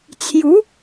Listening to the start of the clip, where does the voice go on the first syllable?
rising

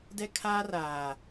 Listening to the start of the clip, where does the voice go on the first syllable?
high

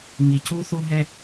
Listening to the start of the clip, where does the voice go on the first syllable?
low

